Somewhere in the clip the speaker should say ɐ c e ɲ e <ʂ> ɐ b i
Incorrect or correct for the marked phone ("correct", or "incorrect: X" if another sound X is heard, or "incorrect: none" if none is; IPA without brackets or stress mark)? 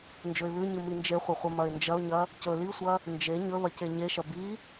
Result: incorrect: ʃ